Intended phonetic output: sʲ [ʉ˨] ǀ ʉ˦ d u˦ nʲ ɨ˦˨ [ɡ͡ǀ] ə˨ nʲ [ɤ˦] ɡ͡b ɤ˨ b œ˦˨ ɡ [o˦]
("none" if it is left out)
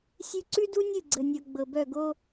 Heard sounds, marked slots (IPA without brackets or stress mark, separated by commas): ʉ˧, ɡ͡ǀ, ɤ˨, o˦